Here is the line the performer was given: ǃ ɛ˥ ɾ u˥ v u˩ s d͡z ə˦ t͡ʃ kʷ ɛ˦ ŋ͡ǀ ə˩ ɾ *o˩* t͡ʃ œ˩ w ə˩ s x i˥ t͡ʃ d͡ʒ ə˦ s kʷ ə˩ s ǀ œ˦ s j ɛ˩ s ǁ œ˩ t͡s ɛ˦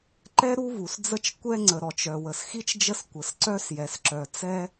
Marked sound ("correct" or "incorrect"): incorrect